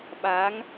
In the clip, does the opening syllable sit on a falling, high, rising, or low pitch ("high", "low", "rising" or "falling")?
rising